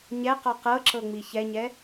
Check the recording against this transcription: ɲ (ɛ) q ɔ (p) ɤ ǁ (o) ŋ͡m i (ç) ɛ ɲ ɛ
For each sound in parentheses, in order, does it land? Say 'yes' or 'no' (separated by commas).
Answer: yes, no, no, yes